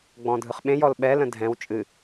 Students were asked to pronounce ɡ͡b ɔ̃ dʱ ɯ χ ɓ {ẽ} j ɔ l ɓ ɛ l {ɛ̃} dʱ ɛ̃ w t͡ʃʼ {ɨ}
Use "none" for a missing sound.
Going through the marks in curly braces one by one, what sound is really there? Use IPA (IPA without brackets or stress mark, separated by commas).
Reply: ẽ, ə̃, ɨ